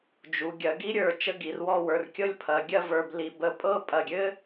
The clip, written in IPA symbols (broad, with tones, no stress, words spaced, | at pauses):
d͡ʒu˩˧ ɡʲɐ˩˧ɡi˥ɾʲə˞˧˩ t͡ʃə˥˧ɡi˩˧rwɔ˥˧wə˞˧r kʲɤ˥˧lʲpʰɐ˩˧ɡʲɐ˥˧v ə˞˧bli˧ bə˧ pʼɤ˥˧pʼɐ˧˩ɡʲɘ˥